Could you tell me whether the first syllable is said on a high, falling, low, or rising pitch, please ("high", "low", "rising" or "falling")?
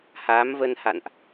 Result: rising